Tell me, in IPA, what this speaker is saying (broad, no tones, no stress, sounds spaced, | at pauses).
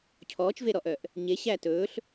cʰ ɔː t͡ʃ v e ɾ ɔ ʔ œ ʔ | ɲ e ɕ æ t ɵː ɬ